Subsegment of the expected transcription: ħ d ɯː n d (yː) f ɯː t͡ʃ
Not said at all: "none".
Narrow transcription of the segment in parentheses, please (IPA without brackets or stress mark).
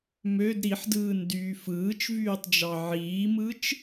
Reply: yː